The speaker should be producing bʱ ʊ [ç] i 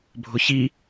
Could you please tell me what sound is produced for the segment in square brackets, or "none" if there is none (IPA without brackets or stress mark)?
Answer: ç